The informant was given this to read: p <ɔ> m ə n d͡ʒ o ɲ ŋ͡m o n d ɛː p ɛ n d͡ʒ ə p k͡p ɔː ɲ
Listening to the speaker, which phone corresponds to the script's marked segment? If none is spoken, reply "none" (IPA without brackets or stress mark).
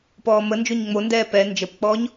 ɔː